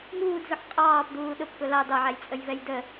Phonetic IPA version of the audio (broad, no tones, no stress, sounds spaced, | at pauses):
ŋ uː d z ʊ ħ qʼ ɑː p d uː ɗ ʊ p k ʊ l ɑ d ɑ ʕ æ j t͡sʼ ə j v ɛ j d ə